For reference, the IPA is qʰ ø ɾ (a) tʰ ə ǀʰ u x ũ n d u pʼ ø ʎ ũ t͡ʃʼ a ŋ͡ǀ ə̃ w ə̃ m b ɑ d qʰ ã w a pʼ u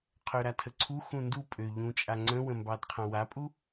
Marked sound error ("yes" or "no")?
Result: no